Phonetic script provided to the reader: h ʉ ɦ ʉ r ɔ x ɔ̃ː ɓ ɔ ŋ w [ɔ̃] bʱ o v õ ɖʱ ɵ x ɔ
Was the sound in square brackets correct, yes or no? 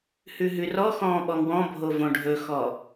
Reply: yes